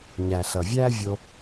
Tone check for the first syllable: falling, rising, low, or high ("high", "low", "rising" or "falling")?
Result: low